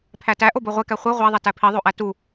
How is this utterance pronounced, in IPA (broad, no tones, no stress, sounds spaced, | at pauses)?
pʰ æ t æ ʔ o b o ʁʷ e k æ χʷ i ʁʷ æ ðˤ e t æ pʰ i ðˤ o ʔ æ t u